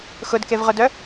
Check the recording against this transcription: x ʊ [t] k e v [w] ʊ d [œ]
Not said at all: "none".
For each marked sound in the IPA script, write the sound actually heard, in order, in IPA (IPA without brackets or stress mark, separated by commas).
d, ʁ, œ